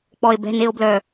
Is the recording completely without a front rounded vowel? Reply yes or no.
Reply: no